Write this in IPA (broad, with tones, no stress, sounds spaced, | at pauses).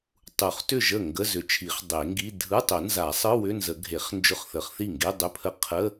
tˤ u˨˩˦ χ t ʏ˥˩ ʒ ə˥˩ ŋ ɡ ə˧˥˧ z ʏ˨˩˦ t͡ʃʰ i˨˩˦ χ dˤ e˨˩˦ ŋ ɡ i˧˥˧ dʱ ɯ˧˥˧ tˤ ʊ˨˩˦ n z a˨˩˦ sˤ ɯ˧˥˧ w ʏ˧˥˧ n z ə˨˩˦ ɡʱ e˨˩˦ χ n d͡ʒ ʊ˧˥˧ χ θ ə˨˩˦ χ θ i˥˩ ŋ ɡ e˧˥˧ dˤ ʏ˧˥˧ pʰ ə˧˥˧ qʰ ə˧˥˧